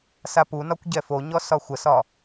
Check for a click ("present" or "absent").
absent